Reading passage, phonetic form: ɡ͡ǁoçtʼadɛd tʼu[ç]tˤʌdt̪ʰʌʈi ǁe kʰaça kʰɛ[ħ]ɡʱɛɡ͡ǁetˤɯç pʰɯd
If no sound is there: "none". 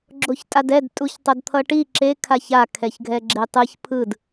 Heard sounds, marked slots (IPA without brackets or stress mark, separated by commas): ç, ç